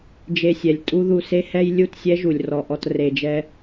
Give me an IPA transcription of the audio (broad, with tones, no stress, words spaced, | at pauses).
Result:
d͡ʒe˧sʲɛ˨lʲ tʼu˦ðu˧se˦hɛ˦j lʲu˦˨tsʲɛ˦ʒu˨lʲ rɔ˨ʔɔ˧t re˨d͡ʒɛ˧